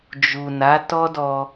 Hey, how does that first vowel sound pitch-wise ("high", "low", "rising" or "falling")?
low